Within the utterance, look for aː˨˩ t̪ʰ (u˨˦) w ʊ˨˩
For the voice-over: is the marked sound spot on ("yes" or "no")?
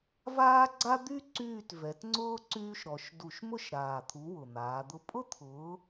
yes